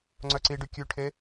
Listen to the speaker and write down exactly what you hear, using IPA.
ŋ͡ǀ œ ǀ i ɖ y kʲ ʉ ʈʰ e

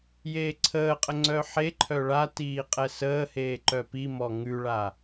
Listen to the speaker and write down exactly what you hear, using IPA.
j eː ǀʰ əː qʼ ə ŋ͡ǀ œ ħ e ǃʰ œ ɭ a t iː qʼ ɛ s əː h eː ǃ œ p i m ɔ ŋ ʉ ɭ a

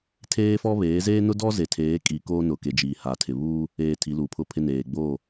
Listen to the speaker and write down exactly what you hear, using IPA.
tʰ eː˦ f ɔ˦ β eː˨˦ z eː˦ n ʊ˦ d ɔ˦ z e˨ tʰ eː˨˦ kʼ i˨ k oː˦ n ʊ˨ k e˨ d͡ʒ iː˨ h a˨ tʰ ɪ˨ β uː˦ | eː˨ tʰ i˨˦ l uː˨ pʰ ʊ˦ pʰ ɪ˦ n eː˨ ɡ͡b oː˦˨

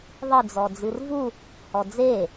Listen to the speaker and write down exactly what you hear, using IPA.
ðˤ ɨ d͡z ɔ d͡z ɨ r v u | h ɔ d͡z e

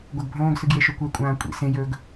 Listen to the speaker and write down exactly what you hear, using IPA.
ɡʷ ɐ ɡ bʱ õː ɡ s ɨ ɡ j e ʃ ɵ kʷ e kʷʼ ãː kʷʼ ḭ s ẽ j ɵː ɡ

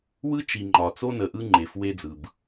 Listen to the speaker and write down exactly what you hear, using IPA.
w ɯ˦ t͡ʃ i˨ ŋ͡ǃ ɒ˨ t͡s o˦ n ə˨ ʔ ɯ˦ ŋ͡ǃ e˨ f w e˦ d͡z ɯ˨ b

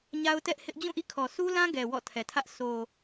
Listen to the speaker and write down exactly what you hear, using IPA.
ɲ a˦ ʊ̯ t ɛ˦ ʔ h ɪ˦ ʔ d͡ʑ ũ˦˨ ʔ ḭ˦˨ kʰ ɔ˨ s u˦ l ã˦ ɡ ɛ˨ w ɔ̰˦˨ tʰ ɛ˨ tʰ ä˦ ʔ s o˨

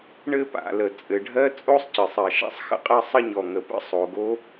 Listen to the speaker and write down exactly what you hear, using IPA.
ɳ ɘ˥ p a̰˩ l ə˩ t͡sʼ ɘ˩ ɖʱ ɜ˥ t͡sʼ o˥ sˤ c ɘ˩ sˤ ɜ˩ ʃ a̰˥ sˤ x ə̰˥ qʼ ɜ˥ sˤ ə˥ ɲ ɔ˩ ŋ ə˩ p ə̰˥ sˤ o˩ ɡ o˥

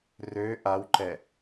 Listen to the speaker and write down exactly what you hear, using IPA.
r ø ʔ a w ǃ ɛ

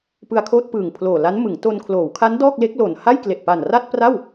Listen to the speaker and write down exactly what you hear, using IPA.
p ɯ˧ a̯ kʰ oː˥˩ t̚ p ɯː˨˩ ŋ pʰ l oː˨˩ l a˦˥ n m ɯ˩˦ ŋ t o˧ n kʰ l oː˩˦ w kʰ a˦˥ n d ɔː˥˩ k̚ l e˦˥ k̚ l o˨˩ n h a˥˩ j k l e˨˩ ʔ p a˨˩ n r a˥˩ t̚ p r a˥˩ w

